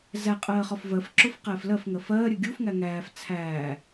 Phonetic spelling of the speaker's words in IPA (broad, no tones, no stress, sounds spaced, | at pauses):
z æ qʼ ɜː χ ɒ f v ɜ f ǁ ʊ f q ɛː f l ɜ f ŋ ɜ f ɜː ɾʲ ɜ ɡʲ u f ŋ æ ŋ æː f t͡sʰ æː